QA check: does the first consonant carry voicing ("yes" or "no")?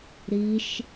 yes